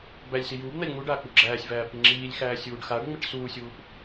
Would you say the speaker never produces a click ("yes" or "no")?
no